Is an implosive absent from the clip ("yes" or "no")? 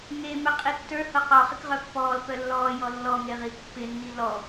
yes